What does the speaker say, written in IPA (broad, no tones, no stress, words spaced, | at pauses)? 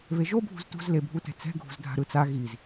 βeʒo bʱṳztṳz lebʱutɛ̤t͡sɛ̤ ɡʱṳzdʱa̤ɾɯt͡sa ɣiz